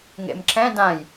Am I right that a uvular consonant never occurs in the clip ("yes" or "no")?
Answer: yes